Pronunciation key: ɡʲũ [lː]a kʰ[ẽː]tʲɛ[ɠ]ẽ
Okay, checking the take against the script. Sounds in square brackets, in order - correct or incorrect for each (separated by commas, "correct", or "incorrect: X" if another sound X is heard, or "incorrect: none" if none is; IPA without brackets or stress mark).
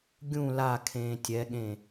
incorrect: l, correct, correct